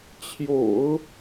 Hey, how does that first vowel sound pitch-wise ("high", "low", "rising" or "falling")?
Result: low